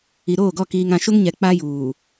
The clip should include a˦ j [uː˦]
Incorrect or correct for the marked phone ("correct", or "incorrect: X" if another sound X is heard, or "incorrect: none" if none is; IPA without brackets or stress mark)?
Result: incorrect: uː˨